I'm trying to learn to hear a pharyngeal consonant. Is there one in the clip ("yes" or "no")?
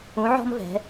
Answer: yes